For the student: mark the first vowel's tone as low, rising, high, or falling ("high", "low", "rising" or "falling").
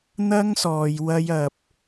high